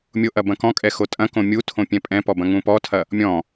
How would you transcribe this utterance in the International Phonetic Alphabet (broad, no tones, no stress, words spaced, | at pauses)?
mʲoʔɐ bɐ̃kɔ̃kʼɛ xotʼɐ̃kõ mʲutʰõ pʲɛ̃pʼɛ̃pɔ bɐ̃ŋũpɔtʰɐ | mʲɔ̃